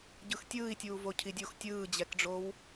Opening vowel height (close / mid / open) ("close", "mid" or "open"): close